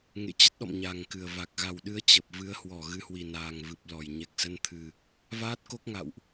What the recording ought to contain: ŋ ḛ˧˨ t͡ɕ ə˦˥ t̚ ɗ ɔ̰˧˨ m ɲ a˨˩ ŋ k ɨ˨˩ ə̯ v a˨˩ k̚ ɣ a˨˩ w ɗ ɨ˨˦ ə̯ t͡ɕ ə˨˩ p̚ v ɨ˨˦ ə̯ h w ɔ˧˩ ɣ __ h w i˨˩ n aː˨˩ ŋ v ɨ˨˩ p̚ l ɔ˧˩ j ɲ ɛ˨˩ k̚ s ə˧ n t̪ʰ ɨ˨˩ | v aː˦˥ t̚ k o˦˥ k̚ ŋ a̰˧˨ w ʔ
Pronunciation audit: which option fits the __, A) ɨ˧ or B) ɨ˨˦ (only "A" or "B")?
B